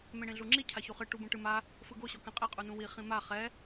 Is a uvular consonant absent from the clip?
no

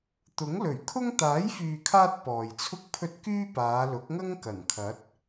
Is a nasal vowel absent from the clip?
yes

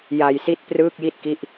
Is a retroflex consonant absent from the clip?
yes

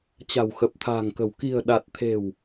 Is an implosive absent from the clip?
no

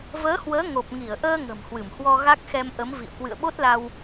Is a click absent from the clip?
yes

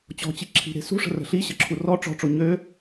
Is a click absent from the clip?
no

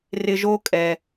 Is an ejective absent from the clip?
no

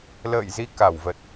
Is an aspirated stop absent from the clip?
yes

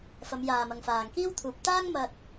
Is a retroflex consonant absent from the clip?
yes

